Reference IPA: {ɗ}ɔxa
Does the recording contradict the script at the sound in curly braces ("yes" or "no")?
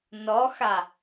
yes